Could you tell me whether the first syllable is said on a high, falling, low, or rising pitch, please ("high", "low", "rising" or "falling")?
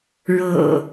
low